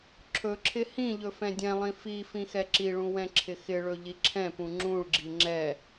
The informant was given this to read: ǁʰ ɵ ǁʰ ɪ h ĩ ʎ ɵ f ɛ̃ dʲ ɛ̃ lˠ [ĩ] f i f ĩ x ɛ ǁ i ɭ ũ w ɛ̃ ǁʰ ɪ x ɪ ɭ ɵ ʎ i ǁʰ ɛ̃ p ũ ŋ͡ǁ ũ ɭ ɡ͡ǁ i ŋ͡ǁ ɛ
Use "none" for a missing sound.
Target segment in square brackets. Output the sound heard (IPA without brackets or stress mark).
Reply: ĩ